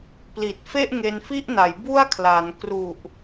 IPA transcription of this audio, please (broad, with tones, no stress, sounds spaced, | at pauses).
p l i˨˩ t̚ f e˥˩ ʔ ŋ e˧ n f i˥˩ ʔ n a˩˦ j b u˥˩ a̯ kʰ l a˩˦ n k r u˨˩ ʔ